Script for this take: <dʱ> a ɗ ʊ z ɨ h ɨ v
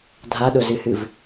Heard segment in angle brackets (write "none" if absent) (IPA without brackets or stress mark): dʱ